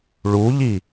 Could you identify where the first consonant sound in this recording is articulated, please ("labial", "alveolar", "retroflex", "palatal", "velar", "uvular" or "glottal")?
retroflex